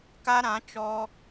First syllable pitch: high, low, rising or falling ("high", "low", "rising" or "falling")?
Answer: high